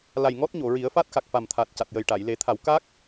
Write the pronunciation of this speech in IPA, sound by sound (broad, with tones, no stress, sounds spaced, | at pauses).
l a˨˩ j ŋ ɔ˦˥ t̚ ɲ o˨˩˨ ɹ i˨˩˦ ə̯ f a˦˥ t̚ x a˨˩ k̚ f a˨˩ m t̪ʰ a˨˩ t̚ c a˨˩ t̚ j ə˨˩ j ʈ a˨˩˨ j l e˨˩˦ t̪ʰ a˨˩˦ w k a˦˥ k̚